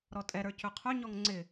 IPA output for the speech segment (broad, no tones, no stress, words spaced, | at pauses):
ɾɔtʼɛɾə˞ cɵqʰɵɲɔŋ ŋ͡ǀɪ